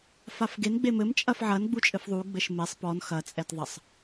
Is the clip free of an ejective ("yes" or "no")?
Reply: no